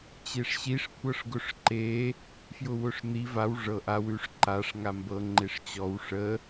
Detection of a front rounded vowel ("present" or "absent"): absent